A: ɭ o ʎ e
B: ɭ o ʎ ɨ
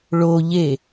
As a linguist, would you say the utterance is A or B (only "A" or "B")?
A